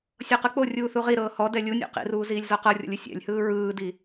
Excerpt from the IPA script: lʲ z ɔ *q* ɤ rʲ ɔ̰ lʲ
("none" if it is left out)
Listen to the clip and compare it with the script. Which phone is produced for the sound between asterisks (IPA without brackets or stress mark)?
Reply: q